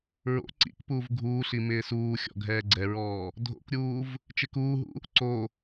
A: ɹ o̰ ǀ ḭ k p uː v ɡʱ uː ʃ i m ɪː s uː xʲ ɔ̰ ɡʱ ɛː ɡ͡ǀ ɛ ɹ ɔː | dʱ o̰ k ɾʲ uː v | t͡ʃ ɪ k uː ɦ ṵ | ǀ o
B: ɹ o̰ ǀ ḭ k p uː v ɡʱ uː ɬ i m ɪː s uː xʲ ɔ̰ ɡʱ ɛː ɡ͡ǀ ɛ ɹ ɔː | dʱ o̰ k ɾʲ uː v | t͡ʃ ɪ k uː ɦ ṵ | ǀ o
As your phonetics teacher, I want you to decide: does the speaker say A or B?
B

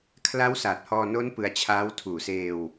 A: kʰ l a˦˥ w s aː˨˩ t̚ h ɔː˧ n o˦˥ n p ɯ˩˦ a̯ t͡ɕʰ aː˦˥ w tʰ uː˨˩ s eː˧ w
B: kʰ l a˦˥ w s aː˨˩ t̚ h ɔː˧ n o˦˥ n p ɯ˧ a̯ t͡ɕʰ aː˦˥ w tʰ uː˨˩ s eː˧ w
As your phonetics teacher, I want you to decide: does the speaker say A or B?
B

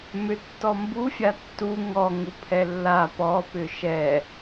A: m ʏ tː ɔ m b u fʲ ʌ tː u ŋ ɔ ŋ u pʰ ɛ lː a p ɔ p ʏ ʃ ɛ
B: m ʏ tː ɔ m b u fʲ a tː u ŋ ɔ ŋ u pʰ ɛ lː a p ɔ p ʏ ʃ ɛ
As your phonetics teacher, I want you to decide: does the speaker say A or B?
B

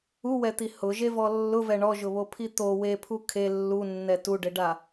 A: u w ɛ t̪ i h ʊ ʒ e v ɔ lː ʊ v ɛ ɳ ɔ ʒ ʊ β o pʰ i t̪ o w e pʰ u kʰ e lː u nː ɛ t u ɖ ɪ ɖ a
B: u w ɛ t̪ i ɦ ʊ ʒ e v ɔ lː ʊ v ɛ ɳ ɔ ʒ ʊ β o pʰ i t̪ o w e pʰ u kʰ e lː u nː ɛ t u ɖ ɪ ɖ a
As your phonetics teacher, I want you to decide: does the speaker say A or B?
A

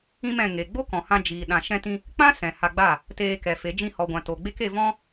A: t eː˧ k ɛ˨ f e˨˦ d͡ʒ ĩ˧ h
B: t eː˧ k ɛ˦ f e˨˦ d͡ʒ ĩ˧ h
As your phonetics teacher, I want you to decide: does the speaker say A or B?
A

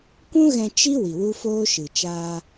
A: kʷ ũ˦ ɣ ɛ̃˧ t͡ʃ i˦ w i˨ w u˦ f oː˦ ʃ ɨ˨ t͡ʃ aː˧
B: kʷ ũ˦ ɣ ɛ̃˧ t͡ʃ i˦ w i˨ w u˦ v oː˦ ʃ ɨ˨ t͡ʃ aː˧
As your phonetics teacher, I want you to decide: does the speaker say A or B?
A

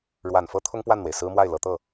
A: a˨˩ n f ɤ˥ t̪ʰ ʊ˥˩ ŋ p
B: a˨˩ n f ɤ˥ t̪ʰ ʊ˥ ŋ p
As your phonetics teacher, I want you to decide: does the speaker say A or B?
B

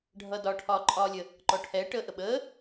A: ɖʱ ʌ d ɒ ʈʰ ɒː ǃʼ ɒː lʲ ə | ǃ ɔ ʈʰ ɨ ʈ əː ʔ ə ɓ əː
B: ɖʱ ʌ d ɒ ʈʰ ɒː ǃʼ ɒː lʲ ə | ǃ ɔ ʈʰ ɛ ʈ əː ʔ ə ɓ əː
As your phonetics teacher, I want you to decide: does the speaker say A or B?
B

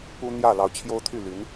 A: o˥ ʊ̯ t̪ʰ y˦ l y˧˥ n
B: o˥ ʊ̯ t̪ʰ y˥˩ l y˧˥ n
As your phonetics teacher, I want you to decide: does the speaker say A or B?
B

